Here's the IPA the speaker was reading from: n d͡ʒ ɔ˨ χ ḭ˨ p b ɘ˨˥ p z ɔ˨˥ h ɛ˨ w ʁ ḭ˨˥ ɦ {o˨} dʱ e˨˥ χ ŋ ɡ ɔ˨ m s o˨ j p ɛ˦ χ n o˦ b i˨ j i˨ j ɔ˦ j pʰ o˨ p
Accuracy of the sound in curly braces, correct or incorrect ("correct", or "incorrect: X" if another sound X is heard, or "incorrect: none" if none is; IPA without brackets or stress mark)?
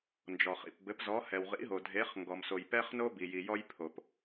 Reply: correct